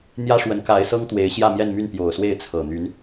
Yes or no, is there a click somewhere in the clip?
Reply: no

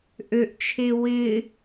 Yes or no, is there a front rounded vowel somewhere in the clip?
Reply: yes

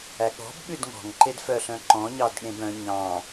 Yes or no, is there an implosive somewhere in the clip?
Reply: yes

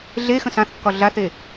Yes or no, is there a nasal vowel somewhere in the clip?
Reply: yes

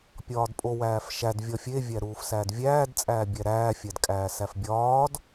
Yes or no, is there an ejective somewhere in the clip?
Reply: yes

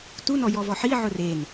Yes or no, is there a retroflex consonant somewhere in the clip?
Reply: no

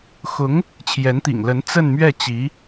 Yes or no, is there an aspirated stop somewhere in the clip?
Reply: yes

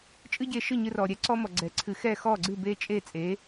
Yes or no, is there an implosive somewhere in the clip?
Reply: no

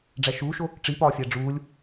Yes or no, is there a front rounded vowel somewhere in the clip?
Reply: no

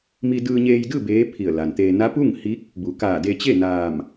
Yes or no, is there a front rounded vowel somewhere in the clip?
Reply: no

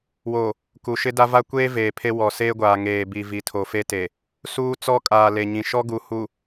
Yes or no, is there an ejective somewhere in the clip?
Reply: yes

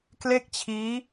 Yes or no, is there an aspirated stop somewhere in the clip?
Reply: yes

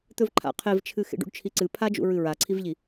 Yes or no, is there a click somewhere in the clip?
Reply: yes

